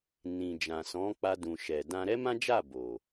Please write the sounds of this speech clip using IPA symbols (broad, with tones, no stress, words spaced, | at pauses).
nĩ˨ d͡ʒã˨sɔ̃˨˦k͡pa˧dũ˨ ʃɛ˨ dã˧ɾɛ˦mã˦d͡ʒa˦˨ bo˨